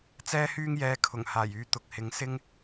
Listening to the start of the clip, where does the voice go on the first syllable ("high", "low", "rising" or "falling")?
high